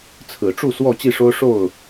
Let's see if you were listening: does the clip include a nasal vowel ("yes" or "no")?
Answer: no